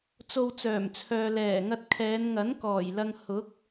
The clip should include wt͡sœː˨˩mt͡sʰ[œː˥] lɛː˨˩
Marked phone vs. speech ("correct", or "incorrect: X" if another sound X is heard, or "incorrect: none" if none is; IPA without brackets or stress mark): incorrect: œː˨